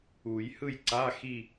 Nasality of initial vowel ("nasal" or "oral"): oral